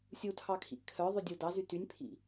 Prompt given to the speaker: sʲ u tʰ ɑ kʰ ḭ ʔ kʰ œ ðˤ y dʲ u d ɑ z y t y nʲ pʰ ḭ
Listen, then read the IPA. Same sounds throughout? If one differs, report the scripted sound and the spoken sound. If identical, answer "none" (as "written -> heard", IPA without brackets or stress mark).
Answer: none